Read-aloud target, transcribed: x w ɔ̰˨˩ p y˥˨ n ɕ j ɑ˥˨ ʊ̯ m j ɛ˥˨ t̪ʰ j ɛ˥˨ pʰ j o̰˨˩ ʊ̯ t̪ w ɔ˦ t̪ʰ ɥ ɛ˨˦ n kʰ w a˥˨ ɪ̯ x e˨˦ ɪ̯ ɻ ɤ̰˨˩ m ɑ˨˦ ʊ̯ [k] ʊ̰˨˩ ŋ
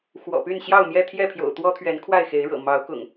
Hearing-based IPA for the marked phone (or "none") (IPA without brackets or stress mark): k